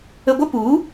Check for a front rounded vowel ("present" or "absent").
absent